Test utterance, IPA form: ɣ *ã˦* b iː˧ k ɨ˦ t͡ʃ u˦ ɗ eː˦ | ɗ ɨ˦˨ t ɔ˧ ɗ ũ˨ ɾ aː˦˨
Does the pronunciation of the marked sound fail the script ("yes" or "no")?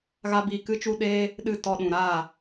yes